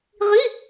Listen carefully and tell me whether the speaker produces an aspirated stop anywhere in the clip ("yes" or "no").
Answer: no